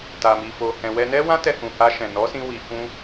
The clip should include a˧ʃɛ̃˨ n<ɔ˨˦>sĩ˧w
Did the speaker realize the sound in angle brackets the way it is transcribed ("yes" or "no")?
yes